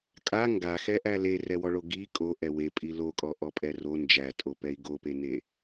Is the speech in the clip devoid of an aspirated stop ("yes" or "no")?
yes